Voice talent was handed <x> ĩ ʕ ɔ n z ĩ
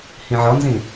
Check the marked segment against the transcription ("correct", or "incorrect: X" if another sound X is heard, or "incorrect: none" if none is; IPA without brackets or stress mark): incorrect: h